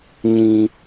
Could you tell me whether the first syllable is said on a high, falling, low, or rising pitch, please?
high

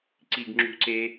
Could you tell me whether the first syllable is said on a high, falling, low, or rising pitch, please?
low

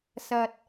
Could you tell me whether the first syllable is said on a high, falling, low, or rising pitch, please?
low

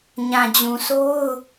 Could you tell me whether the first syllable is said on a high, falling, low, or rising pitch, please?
low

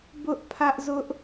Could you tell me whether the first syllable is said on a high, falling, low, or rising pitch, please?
high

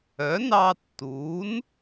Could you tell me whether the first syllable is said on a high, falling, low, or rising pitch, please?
rising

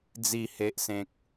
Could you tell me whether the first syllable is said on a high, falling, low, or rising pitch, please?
falling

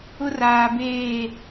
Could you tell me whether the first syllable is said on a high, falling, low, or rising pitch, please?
high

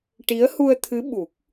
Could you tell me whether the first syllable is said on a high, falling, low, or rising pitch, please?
rising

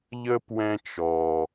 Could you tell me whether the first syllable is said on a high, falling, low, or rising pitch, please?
high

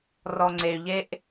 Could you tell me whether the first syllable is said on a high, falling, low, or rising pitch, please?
low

